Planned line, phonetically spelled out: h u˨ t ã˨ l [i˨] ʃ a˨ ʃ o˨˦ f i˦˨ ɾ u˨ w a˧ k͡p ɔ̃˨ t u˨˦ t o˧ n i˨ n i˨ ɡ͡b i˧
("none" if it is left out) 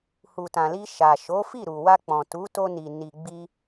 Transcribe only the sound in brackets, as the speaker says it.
i˧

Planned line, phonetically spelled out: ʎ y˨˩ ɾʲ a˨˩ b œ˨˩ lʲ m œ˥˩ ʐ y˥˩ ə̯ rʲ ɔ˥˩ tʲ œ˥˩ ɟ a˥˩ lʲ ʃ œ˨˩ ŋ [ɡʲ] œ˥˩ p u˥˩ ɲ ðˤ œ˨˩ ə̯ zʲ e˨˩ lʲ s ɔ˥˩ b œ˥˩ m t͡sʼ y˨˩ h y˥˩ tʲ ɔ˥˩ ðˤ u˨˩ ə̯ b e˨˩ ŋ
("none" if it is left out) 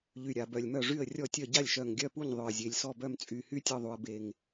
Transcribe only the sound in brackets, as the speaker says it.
ɡʲ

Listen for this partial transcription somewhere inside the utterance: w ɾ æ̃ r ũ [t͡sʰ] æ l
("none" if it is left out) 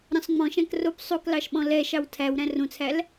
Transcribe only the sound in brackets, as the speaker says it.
t͡sʰ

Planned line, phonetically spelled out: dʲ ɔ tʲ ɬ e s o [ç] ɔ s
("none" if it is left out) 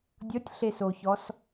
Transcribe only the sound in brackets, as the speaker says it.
ç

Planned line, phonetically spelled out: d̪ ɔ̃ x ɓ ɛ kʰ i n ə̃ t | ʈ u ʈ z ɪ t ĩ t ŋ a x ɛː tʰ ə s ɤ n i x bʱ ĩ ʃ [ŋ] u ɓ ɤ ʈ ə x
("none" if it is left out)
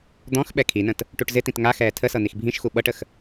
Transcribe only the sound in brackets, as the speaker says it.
x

